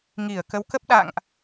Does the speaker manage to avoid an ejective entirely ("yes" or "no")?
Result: yes